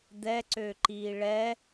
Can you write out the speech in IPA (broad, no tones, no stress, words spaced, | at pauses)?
d̪ɛǀøːǃiː ɭɛ